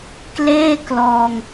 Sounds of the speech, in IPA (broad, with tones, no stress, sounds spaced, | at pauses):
k l eː˥˩ k l ɔː˧ ŋ